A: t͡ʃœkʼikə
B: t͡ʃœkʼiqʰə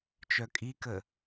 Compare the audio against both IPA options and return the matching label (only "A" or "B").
A